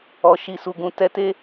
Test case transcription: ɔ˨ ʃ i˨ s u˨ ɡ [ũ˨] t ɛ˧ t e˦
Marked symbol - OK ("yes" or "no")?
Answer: yes